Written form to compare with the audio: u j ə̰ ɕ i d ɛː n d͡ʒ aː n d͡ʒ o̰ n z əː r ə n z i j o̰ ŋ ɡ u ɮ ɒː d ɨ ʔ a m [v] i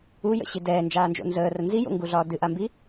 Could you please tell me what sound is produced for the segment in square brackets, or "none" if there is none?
b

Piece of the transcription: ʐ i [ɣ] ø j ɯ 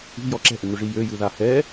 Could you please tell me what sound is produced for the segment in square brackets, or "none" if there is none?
j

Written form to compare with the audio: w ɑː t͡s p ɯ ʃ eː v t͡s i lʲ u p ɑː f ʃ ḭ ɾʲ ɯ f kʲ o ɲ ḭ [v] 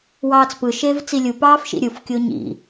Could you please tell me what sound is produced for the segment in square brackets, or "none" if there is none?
none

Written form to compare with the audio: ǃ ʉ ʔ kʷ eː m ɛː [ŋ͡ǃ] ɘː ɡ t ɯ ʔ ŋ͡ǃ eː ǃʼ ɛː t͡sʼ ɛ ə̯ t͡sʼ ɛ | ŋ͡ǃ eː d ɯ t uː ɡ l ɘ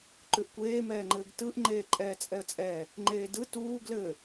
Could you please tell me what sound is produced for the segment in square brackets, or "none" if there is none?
ŋ͡ǃ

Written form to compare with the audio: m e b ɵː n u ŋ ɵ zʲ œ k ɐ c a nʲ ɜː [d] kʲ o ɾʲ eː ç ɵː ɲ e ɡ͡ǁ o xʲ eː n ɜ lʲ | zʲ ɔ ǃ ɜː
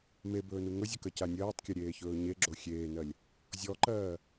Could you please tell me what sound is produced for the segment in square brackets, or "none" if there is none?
tˤ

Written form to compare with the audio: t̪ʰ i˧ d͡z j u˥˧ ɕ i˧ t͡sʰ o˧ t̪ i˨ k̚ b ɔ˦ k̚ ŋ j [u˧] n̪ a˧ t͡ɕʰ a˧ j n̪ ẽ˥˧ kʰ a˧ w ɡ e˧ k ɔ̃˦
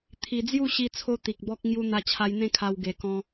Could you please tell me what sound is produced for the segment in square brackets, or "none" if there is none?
u˧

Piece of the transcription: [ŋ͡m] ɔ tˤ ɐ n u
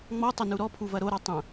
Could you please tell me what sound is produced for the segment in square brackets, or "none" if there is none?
ŋ͡m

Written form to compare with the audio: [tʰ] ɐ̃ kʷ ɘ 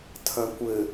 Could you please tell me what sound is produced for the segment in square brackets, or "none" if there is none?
tʰ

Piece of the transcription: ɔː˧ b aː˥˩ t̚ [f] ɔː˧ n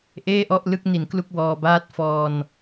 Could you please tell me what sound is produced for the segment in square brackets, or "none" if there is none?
f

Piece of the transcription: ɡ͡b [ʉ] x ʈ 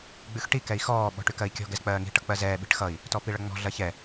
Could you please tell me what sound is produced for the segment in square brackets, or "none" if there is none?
ʉ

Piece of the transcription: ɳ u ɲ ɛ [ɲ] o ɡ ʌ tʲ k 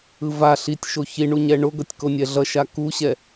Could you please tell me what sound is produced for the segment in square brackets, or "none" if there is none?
ɳ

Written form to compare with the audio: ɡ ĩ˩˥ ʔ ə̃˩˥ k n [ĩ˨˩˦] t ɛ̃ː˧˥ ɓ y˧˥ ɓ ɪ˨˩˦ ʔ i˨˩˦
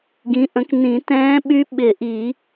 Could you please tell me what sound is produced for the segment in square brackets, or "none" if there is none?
ĩ˨˩˦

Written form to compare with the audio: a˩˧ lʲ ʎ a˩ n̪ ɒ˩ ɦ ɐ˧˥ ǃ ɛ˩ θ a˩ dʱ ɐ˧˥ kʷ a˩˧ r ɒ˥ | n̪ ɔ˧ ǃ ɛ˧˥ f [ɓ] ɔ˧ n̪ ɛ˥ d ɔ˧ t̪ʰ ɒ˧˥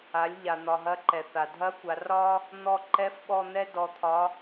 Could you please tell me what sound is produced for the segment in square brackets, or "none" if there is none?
ɓ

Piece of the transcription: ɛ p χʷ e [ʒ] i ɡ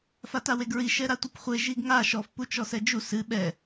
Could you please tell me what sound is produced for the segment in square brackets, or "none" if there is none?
ʒ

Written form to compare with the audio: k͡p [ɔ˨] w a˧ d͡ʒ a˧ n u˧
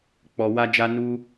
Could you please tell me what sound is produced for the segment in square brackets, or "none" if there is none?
ɔ˨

